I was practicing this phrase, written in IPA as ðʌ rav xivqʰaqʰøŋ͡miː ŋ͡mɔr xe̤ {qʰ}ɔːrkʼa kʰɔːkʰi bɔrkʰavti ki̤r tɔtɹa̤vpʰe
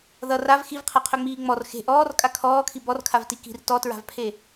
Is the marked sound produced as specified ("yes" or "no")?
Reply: no